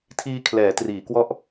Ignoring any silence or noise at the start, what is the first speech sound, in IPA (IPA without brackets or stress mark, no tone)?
tʰ